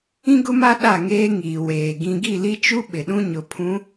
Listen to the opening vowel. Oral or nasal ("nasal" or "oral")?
nasal